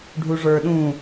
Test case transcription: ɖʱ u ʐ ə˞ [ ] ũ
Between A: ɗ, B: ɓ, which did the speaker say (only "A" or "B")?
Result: A